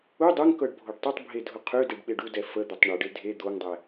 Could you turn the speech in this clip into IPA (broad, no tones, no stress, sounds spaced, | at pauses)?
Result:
u dˤ ø ŋ k ɤ ɖ bʱ o ɖ tˤ ʏ tˤ bʱ e dʱ ʊ qʰ ø d e ɖ ɓ e ɖ u d ɛ f ə d̪ ʏ tˤ ɳ u ɖ e dʱ e d̪ o ŋ dˤ ɛ